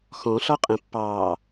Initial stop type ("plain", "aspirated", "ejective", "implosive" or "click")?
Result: ejective